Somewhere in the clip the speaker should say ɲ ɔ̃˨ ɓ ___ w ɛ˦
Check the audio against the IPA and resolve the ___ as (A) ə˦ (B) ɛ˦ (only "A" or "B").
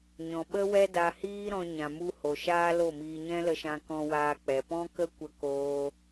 A